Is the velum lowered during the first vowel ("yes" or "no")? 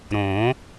yes